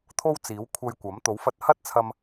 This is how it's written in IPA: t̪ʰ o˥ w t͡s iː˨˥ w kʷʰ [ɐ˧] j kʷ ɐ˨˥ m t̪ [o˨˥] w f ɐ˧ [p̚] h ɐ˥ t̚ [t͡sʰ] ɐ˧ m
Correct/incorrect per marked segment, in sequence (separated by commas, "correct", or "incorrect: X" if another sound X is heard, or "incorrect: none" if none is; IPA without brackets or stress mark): correct, correct, incorrect: t̚, correct